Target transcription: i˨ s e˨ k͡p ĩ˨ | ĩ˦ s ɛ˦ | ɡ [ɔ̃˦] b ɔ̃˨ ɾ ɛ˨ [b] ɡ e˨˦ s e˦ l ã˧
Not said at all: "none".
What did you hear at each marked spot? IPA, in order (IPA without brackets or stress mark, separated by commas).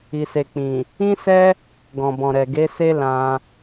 ɔ̃˨, none